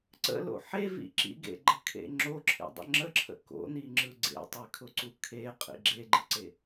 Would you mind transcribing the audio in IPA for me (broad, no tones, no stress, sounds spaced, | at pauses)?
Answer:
ǀ ə̰ l o̰ ħ e v ḭ ǁ ḭ ɡ ḛ ɡ͡ǃ ə kʰ ḛ ŋ͡ǁ o ǁʰ ḛ dˤ ə̰ ŋ͡ǁ ə ǁʰ ə̰ k o̰ n i ŋ͡ǁ ɯ ɡ͡ǀ ḛ tˤ e kʰ ʊ ǀ u kʰ e qʼ ḭ ɡ͡ǁ e ɡ͡ǃ ɯ ǀ e